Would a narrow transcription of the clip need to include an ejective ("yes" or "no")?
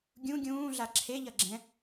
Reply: no